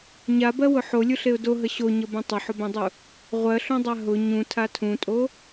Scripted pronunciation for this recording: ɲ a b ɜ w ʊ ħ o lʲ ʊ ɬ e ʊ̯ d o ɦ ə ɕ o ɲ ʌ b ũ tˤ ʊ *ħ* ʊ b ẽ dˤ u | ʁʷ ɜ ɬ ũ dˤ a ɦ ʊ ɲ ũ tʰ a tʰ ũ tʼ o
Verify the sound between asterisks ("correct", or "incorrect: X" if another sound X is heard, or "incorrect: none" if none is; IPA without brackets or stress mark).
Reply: correct